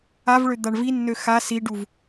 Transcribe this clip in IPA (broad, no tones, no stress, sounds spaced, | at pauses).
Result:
a v ɭ ø d̪ a ɳ v i nː ø x a s i ɖ u v